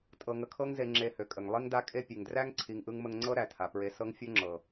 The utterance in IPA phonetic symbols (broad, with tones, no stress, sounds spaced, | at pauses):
tʼ ɤ˧ ŋ ə˧ kʰ ɤ˦ ŋ z e˧ ŋ͡ǁ e˧ h ø˨ kʼ ə˨ ŋ lˠ i˦ ŋ d a˦ kʼ e˦ pʲ e˨ ŋ d r æ˦ ŋ ǀʰ i˨ ŋ ʔ ɯ˧ ŋ m ə˧ ŋ ŋ͡ǀ ɤ˦ ɾ æ˨ tʰ a˨ p ɹ e˧ s ɤ˦ ŋ fʲ ɤ˦ ŋ͡ǁ ɤ˨